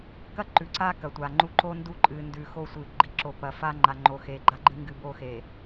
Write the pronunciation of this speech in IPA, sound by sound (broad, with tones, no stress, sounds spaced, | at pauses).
k ɐ˦ ǃ ʉ˨ ǀ a˦ k ɐ˨ tʷ a˨ ŋ͡ǃ u˦ ǃ o˦ n d u˦˨ ǃʼ ɨ˨ n d ʉ˨ x o˦ sʷ ɨ˨ ɡ͡ǃ i˨ ǁ o˨ p ɐ˨ f a˦ ŋ͡ǃ a˨ ŋ͡ǃ o˨ x e˨ ɡ͡ǃ a˦ ɡ͡ǃ ɨ˦ ŋ ɡ ɨ˨ b o˦ x e˨